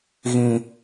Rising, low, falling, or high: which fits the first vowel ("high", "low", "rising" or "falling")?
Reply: low